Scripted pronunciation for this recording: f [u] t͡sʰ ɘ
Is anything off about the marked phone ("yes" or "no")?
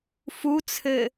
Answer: no